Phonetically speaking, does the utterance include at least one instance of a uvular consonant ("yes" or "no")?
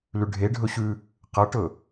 yes